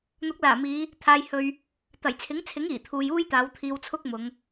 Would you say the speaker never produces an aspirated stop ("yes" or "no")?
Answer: no